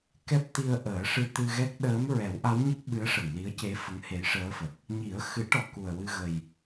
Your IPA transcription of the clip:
kɛ˦˥p̚t̪i˧ə̯ʔəː˨˩˦ʂɨ˧ t̪ɨ˧ɣɛ˦˥k̚ ɗəː˧˥m ɹɛ˨˩˦wʔa˧˥wɲə˦˥k̚ ɓɨ˧˥ə̯ʂə˨˩˨ŋli˧˥ə̯ce˧˥ fə˧˥ŋhe˧˥jʂəː˧˥fə˨˩k̚ | ɲi˨˩˦ə̯xɨ˨˩˦ʈɔ˨˩˨ ku˨˩ə̯wɨ˧ɣə˨˩j

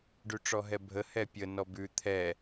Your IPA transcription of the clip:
ɖʉʈ͡ʂɔɦɛbʱə hɛpʲə nɔbʉ t̪ʰɛ

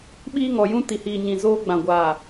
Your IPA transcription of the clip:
ɓiː˦ŋɔ˨jũ˦ ti˨hiː˨ ɲĩ˨zoː˦ ɡ͡bã˨ ɡʷaː˨

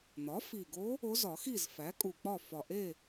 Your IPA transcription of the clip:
n̪ɒ˩˥fi˨˩ɡo˧˥ | o˧˥zɒ˨˩˦xi˥˨z fæ˩˥kʼu˨˩k͡pɒ˥˨ fɒ˨˩ʔe˥˨

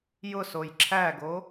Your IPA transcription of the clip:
jʊsoj ǁʰæɡo

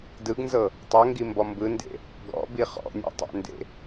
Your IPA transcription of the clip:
dɯɡnzɤ | tˤɤŋɡimbɔ mbɯndḛ | ɡɔ̰bi χɔ̰nʲɔ̰tˤɛ̰ndḛ

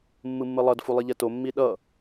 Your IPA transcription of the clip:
mːɯmːɯlˠʌd fulˠiʎɛto mːiɗʌ

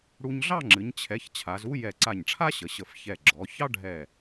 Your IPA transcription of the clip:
ɽu˧ɲɮɑ˥˧ŋ͡ǁɨ˩˧ɲ t͡ɕʰɛ˩˧ç t͡ɕʰa˩˧zu˥ jɛ˧˩ǀa˧˩ɲʈ͡ʂʰa˥ ɕə˩˧ɕə˧˩f çɛ˧˩ɡ͡ǁɔ˩˧ çɑ˥ɖʱɛ˧˩

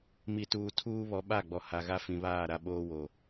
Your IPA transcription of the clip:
mi˨tuː˨ tʰuː˦βɔ˨˦ɓa˦˨ɡ͡bɔ˨ ha˨ɣa˦ fĩ˨βaː˦˨ɾa˦ ɓoː˦wo˨

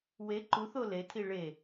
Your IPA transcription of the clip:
we ǃuθo letʰi ɭe

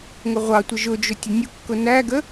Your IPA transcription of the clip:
ŋʊʁʷɑtʷə ʒʊd͡ʒʊ tʲənʲʊkːʊ næɡə

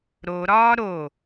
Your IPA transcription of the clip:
ɾoɾɒː ɾo

